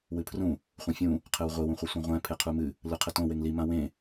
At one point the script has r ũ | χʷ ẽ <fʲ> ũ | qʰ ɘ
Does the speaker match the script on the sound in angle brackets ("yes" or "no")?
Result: yes